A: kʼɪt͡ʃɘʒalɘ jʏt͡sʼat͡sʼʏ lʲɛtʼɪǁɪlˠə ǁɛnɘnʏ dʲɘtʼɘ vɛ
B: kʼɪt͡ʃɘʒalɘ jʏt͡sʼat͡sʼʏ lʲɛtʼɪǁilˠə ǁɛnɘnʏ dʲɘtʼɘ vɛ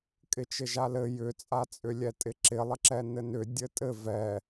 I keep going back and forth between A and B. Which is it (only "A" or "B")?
A